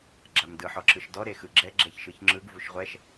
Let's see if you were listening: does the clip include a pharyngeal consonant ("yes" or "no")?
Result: yes